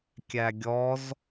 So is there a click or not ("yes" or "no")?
no